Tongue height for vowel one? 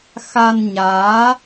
low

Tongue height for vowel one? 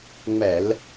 mid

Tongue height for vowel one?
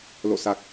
mid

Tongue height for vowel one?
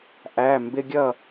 low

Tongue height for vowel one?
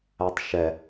low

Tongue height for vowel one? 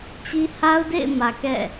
high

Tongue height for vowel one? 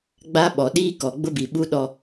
low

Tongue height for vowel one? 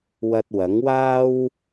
low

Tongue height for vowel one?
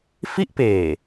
high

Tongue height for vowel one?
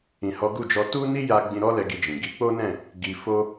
high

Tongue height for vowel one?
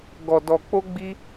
mid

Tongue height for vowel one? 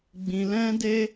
high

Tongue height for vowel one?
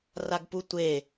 low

